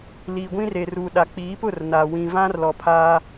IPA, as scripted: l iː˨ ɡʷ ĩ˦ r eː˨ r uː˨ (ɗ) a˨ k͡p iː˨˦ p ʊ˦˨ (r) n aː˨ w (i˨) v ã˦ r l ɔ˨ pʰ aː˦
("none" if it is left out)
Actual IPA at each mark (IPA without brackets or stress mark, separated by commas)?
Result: ɗ, r, ĩ˨